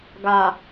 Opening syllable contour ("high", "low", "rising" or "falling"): low